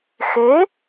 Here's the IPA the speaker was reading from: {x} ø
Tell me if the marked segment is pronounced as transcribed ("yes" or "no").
yes